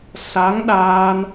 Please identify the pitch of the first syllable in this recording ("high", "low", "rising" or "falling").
rising